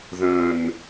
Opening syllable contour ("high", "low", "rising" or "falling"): low